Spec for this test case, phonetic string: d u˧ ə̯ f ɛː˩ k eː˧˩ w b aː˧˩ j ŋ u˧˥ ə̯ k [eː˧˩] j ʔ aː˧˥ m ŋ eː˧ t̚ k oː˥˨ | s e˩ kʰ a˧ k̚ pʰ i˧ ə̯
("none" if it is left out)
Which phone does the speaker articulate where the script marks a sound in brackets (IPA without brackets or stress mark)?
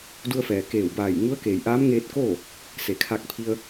eː˩